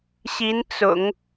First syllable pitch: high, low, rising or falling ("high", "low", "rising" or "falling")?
rising